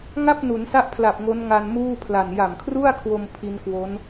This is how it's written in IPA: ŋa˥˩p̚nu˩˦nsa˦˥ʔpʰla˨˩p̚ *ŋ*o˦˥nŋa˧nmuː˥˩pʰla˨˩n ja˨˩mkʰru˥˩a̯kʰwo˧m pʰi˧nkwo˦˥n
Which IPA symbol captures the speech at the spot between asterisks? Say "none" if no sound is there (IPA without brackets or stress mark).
ŋ